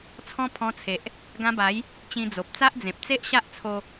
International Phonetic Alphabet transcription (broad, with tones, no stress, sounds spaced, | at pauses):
t͡sʰ ɔ̃˦ pʰ ɔ̃˧ t͡sʰ e˨ ʔ | ɡ ã˧ b a˨˦ j | t͡ɕ ĩ˧ d͡z o˨ p̚ t͡s a˦ ʔ d͡z ẽ˨ p̚ t͡s e˦ ʔ ɕ a˦ ʔ t͡sʰ o˧